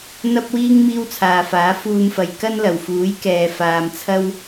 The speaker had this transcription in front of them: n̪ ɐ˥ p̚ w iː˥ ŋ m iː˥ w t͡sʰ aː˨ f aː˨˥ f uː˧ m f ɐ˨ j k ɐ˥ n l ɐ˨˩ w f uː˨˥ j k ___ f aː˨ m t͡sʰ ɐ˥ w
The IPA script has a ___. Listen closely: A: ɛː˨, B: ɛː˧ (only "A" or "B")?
A